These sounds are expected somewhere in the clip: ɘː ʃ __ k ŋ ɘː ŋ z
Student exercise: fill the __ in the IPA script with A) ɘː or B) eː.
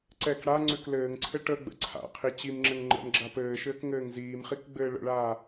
A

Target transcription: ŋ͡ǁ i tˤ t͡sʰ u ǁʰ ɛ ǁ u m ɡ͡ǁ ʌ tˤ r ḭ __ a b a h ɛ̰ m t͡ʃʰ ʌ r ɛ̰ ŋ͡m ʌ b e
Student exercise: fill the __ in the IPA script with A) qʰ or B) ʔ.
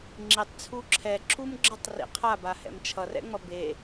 A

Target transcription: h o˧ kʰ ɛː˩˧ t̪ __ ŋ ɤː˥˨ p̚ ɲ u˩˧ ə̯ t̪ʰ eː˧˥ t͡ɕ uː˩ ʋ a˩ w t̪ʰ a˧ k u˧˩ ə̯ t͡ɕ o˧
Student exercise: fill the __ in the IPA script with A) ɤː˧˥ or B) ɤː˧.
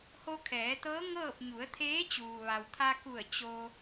A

